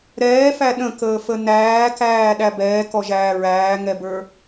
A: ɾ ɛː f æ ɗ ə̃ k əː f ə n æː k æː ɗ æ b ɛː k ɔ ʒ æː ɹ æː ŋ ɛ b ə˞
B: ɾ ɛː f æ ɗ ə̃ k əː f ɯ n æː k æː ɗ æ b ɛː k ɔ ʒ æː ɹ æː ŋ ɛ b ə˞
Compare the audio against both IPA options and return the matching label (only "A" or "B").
A